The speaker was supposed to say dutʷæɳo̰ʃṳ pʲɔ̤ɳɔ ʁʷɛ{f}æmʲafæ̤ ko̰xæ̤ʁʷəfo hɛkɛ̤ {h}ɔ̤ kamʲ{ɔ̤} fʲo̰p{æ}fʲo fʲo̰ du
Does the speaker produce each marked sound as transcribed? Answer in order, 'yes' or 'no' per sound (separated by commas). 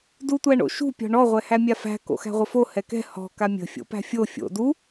no, yes, no, no